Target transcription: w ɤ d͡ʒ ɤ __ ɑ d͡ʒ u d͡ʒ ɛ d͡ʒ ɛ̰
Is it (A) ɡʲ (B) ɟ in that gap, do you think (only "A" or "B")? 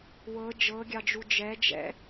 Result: A